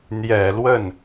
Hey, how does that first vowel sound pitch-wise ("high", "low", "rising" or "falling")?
low